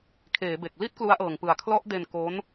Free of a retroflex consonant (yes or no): yes